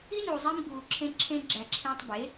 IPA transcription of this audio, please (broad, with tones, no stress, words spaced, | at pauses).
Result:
i˦nuː˨zˤi˧m ɡuː˨ǁʰẽ˧ ǁʰẽ˧ɡ͡ǁæ˨ǁʰẽː˧tˤ be˨˦